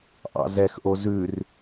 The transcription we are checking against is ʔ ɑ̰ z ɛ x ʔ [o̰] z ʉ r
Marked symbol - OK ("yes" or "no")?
no